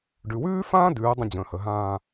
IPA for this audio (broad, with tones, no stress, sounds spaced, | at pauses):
ɖ ʉ˩˧ w ʉː˥ f ãː˥ d ʉː˩˧ dˤ ə̃˥ d͡ʑ ə̃ː˩˧ h ə˩˧ ɦ ãː˥˧